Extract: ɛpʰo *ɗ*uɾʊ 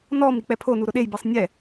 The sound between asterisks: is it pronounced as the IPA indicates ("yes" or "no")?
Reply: no